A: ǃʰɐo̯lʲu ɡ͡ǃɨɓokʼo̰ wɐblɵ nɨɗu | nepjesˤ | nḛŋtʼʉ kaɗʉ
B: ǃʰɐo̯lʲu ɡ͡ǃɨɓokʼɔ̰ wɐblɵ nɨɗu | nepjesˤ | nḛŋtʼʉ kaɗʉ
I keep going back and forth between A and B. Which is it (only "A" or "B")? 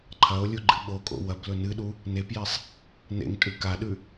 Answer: A